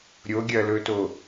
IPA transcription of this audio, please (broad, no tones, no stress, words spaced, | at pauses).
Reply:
ɾʲoɡʲɐlɵto